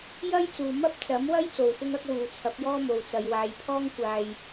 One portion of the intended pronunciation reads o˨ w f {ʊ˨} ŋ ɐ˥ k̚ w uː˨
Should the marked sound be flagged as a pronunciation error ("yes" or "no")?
yes